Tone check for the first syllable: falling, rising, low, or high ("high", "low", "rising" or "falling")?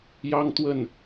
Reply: high